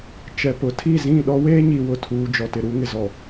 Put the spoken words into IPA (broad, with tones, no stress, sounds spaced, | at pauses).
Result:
t͡ʃ ɛ˨ p ʊ˨ tʰ i˦˨ z ĩ˦˨ ɗ ɔ˦ w eː˦ ɲ i˨ w ʊ˨ tʰ uː˨ d͡ʒ ɔ˨ t ɪ˨ ɾ u˦ ŋ ɪ˨ z ɔ˨